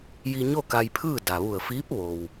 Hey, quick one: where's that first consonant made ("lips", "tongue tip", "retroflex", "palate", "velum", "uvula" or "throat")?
palate